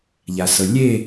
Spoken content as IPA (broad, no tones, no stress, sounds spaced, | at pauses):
ʎ a s ɤ lʲ e